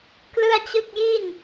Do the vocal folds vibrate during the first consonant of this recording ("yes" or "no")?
no